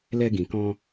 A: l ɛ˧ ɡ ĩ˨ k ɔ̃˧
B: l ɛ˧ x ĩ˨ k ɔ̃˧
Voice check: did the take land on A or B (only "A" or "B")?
A